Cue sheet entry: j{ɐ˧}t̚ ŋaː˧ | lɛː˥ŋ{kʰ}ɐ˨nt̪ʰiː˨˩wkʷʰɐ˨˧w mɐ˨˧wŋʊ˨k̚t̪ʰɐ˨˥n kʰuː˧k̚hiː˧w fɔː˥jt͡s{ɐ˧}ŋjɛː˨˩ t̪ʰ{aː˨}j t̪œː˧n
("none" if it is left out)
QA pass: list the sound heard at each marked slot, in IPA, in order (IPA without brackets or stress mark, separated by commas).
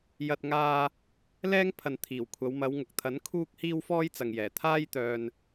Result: ɐ˧, pʰ, ɐ˨, aː˥